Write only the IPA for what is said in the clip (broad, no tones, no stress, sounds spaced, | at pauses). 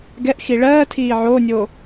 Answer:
ɡ ɛ ʔ x i ɭ ɜː tʰ iː ʕ oː nʲ oː